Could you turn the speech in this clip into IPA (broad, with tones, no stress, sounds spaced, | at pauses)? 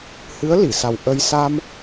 h ɨ˧˥ ə̯ l i˨˩˨ s a˨˩ w ʔ ə˧ j s a˧ m